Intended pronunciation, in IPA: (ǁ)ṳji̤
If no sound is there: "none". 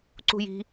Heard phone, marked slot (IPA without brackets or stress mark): ǀ